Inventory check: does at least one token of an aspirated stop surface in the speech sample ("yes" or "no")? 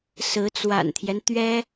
yes